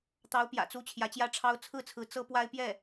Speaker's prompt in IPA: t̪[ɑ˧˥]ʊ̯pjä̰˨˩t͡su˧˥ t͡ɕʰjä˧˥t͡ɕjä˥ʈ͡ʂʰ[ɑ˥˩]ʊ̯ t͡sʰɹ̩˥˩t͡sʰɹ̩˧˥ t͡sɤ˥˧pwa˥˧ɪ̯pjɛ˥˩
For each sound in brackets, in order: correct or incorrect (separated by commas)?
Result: correct, incorrect